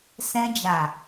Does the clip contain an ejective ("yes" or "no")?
no